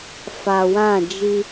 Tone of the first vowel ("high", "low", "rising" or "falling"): low